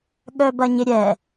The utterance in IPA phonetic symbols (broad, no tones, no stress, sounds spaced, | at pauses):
ɠ œ b ɐ ɲ ɪ ɾʲ ɛ